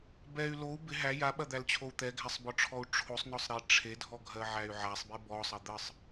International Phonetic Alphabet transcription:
b ɛ y̯ l o u̯ b ɪ ɦ æ j a ɓ ɐ d̪ æ l t͡ɕʰ o u̯ t̪ ɛ ɡʱ æ sˤ b ɔ ʈ͡ʂʰ ɔ u̯ ʈ͡ʂʰ o sˤ n ɔ sˤ ɾ e ʈ͡ʂʰ e dʱ ɔ ɡʱ ɜ ʕ æ y̯ ʕ a sˤ b e b ɔ sˤ ɐ d̪ ə sˤ

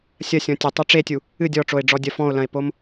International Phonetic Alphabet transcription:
sʲ ɐ sʲ ɔ̃ tʲ ɘ tˤ o ʈ͡ʂ e tʲ u | ɨ dʲ ɔ ʈ͡ʂ o e̯ ɖ͡ʐ ɔ dʲ ɐ f ɔ̃ o̯ l ɐ̃ e̯ p o m

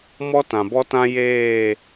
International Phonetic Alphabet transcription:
m ɔ˦ t ã˨ b ɔ˦ t ã˦ j eː˦˨

